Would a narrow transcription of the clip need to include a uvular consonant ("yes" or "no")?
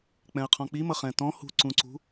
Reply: yes